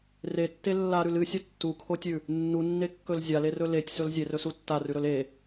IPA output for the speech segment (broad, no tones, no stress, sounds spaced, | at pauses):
r e tː e lː a ɾ ʉ l ɨ sʲ ɐ tː u kʰ o tʲ ʉ | nː u nː e kː ɵ l zʲ a l e r ɵ l e tʲ s ɵ l zʲ e r ɵ s u tː a r ʉ ɾ ɵ l e